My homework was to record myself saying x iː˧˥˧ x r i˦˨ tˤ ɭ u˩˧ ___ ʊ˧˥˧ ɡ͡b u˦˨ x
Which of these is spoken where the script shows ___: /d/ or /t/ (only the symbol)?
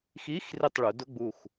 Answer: d